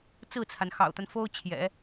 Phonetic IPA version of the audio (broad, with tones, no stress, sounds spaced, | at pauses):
t͡s ɹ̩˥˩ t͡sʰ a˩ n x ɑ̰˨˩ ʊ̯ t̪ a˦ n f o˥ ʊ̯ t͡ɕʰ j ɛ̰˨˩˦